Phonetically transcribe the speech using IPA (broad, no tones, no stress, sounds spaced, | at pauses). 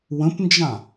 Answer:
w ə̃ p n d͡ʒ ã